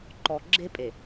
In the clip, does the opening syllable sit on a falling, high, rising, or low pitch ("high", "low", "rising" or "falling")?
low